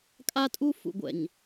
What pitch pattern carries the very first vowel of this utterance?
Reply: high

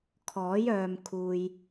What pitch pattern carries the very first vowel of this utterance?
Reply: rising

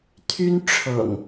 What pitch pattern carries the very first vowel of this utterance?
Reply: high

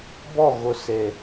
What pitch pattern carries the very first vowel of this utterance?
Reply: falling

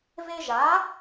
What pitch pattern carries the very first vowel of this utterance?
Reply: high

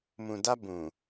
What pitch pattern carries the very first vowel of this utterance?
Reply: low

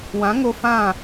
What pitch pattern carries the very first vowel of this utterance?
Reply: rising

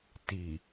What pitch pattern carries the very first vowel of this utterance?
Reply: low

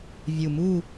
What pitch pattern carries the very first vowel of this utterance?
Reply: low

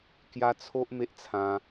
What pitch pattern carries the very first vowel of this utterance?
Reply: high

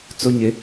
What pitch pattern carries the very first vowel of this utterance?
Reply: high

